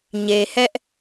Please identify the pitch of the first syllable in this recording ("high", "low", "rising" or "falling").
low